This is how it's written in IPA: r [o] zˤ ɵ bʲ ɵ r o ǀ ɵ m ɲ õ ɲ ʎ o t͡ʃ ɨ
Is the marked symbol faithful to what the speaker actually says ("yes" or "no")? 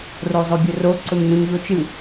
yes